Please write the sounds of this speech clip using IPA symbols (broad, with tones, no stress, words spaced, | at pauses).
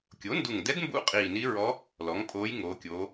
kʲo˩˥ndu˨˩ŋdɛ˧˥dmbṵ˧˥ qʼiː˨˩ni˧˥ɹɔ˧˥ | lɔ˩˥ŋpʼoː˧˥j ŋo˩˧kʲoː˩˧